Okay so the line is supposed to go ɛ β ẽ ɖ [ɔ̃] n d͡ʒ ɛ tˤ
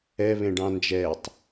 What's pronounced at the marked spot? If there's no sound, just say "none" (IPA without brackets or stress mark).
ɑ̃